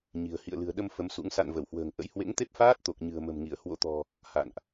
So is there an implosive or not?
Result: yes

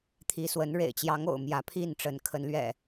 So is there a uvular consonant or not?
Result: no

